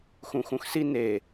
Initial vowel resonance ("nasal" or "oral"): nasal